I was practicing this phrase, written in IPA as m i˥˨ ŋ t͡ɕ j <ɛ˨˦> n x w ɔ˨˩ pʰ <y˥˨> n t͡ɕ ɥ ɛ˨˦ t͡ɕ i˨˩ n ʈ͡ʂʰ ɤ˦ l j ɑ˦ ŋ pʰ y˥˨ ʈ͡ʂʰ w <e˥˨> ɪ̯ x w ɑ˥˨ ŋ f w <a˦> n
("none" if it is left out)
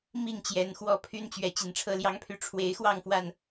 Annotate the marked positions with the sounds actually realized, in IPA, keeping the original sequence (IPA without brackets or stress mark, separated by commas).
ɛ˨˦, y˦, e˨˦, a˨˩